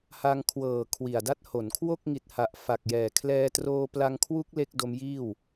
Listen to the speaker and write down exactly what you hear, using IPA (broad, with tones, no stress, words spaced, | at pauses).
ha˧ŋkʰwɤː˨˩ kʰwi˨˩a̯da˦˥t̚ho˩˦nkʰwo˥˩k̚ ŋi˨˩t̚ha˨˩ʔ fa˨˩k̚jɛː˨˩ kʰlɛː˧troː˧pla˧ŋkʰwu˦˥k̚ le˦˥k̚do˦˥mjiː˥˩w